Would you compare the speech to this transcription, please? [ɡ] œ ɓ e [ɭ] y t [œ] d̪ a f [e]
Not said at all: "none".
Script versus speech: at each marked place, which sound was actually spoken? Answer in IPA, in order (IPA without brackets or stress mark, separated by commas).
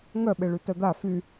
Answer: ŋ, ɭ, œ, y